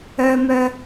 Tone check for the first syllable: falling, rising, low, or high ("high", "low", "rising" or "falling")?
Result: low